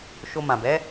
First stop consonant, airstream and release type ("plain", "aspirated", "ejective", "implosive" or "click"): plain